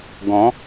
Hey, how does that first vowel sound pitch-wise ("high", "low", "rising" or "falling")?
rising